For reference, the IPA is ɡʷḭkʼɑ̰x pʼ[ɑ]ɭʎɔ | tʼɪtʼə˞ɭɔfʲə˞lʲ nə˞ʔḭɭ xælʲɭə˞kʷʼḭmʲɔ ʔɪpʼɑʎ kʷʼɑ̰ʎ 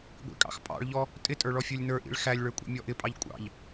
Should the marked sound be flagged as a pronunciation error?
yes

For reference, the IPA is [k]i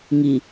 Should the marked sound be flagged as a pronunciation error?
yes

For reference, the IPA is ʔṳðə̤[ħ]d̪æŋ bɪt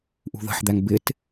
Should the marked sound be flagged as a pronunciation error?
no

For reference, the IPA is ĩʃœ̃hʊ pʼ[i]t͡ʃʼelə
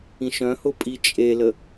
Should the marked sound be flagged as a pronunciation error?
no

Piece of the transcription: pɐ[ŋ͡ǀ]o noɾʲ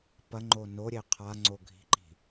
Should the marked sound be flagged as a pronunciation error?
yes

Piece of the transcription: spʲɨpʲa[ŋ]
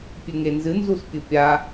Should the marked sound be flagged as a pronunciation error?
yes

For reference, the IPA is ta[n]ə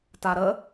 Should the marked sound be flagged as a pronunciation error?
yes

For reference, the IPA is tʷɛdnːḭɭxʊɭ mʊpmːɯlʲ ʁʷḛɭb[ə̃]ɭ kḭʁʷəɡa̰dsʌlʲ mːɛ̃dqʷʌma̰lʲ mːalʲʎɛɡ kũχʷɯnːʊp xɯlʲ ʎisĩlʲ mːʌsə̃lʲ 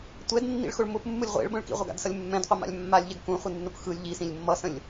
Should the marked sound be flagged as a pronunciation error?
no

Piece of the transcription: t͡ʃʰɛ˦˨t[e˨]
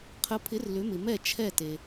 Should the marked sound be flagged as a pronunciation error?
no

